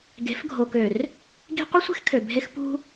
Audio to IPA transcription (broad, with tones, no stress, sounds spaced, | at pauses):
ɡ e̤˨˦ f ɡʱ o˨ k ø˨ r | ɡ i̤˦ qʷ i˦ sʷ e̤˦ x kʰ ø˨ bʱ e˦ x p ṳ˦